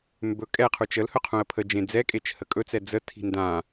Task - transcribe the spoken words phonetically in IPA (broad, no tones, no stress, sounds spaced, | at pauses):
m b ɵ kʼ ɛ qʰ u t͡ʃ ə l h ɵ qʰ ũ ə̯ pʰ ə d͡ʒ ẽ d͡z ɛ kʼ e t͡ʃ h ə kʼ ɵ t͡s ɛ d͡z ə tʰ i̤ n d ã